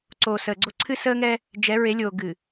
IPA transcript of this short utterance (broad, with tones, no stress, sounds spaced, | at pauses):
ǀ oː˨ s əː˨ ɡ͡ǀ o˦ ǀʰ ɨ˦ s əː˦ ŋ ɛ˦ | d͡ʒ ɛ˨˦ ɹ e˨˦ lʲ oː˨ ɡ ɨ˨